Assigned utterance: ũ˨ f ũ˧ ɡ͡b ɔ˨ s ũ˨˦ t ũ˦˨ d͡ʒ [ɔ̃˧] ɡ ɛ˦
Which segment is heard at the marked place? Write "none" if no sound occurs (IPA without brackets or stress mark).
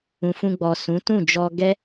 ɔ˧